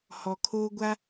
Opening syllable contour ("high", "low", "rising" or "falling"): low